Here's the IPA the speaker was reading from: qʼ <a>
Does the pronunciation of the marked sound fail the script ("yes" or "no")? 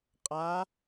no